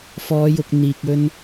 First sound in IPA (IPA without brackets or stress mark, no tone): f